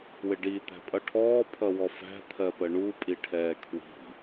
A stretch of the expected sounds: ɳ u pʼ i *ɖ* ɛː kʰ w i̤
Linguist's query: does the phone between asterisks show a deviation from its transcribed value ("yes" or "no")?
yes